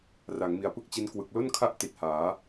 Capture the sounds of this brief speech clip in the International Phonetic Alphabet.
r a˩˦ ŋ m i˨˩ a̯ p ɯ˥˩ k̚ t͡ɕ i˧ n k w ɯ˨˩ k̚ l o˥˩ n kʰ a˦˥ ʔ t i˨˩ t̚ h aː˩˦

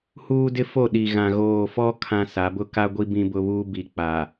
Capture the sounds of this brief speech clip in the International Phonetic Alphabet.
h uː˦ d ɪ˦ f o˦˨ ɗ i˨ ɣ ã˨ ɣ oː˨ f ɔ˦ kʰ ã˦ s a˨˦ b ʊ˦ k a˦ ɡʷ i˦ b ĩ˦ b ʊ˦ β u˦ b i˨ k͡p a˨

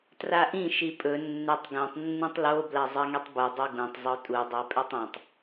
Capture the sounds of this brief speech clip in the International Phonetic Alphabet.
t r a ʔ ĩ ʃ i pʼ ɵ nː ʉ tˤ ɡ ẽ tˤ nː ũ tˤ l o b l a zˤ ɐ ŋ i tˤ b ɨ dˤ u ɡ õ tˤ zˤ o tʼ u dˤ a pʼ e tˤ ã tˤ

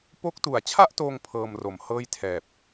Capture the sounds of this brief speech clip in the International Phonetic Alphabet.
p o˦˥ k̚ t u˨˩ a̯ t͡ɕʰ a˥˩ ʔ t oː˧ ŋ pʰ ɤː˧ m r o˨˩ m h ɤː˥˩ j tʰ ɛː˨˩ p̚

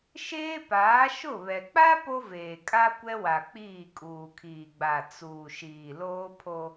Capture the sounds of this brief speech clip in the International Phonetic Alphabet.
ʃ eː˦ p aː˨˦ ʃ ʊ˦˨ β ɛ˨ k͡p a˦ p o˦ v eː˨ kʼ a˦ kʷ ɛ˦ w a˨ k͡p iː˦˨ kʼ uː˨ kʰ iː˨ ɡ͡b a˨ t͡s uː˨ ʃ iː˨ l oː˦ pʰ o˦

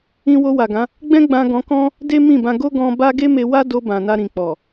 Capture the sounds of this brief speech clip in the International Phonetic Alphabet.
ĩ˧ w o˧ w a˨ ɡ ã˨˦ | ɡ͡b ɛ̃˦ ɡ͡b ã˧ ɡ ɔ̃˧ k ɔ̃˦ | d e˦ m ĩ˦˨ b ã˧ ɡ o˦ ɡ ɔ̃˧ b a˦ ɡ e˦ m e˧ w a˦ d o˧ b ã˨ n a˧ ɾ ĩ˨ k͡p ɔ˨

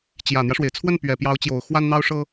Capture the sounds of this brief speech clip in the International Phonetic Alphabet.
t͡ɕ j ä˨˩ n̪ j ä˦ ʂ w e˩ ɪ̯ t͡sʰ w ə˥˩ n p ɥ ɛ˨˩ p j ɑ˧˥ ʊ̯ t͡ɕ j o˨˩ ʊ̯ x w a˥ n n̪ ɑ˥ ʊ̯ ʂ ɤ˥

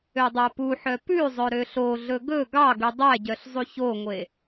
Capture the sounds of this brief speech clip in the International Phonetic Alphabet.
ø dˤ æ p u ħ œ p ʉ zˤ œ ɾ ø ɬ o ɮ ɵ ɡ ɵ ɡ ɑ ɡ ʉ dˤ æ ɟ œ ɬ zˤ u ç o ŋʷ e

